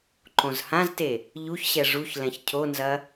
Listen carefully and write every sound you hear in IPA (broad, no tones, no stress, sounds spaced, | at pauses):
ǃ õ z h ã z t e | ʎ u ç ɕ ɛ ʐ u ç l ɛ̃ ç cʰ o n z ɐ